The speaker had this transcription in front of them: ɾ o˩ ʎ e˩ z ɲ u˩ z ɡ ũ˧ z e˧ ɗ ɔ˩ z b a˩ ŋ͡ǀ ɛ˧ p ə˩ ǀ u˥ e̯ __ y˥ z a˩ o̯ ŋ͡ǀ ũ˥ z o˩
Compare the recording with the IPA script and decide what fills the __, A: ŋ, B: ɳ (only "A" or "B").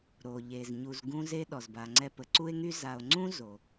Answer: A